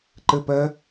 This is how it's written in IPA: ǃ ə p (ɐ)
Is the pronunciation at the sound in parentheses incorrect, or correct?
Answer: correct